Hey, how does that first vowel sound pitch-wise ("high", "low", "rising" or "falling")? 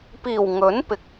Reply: low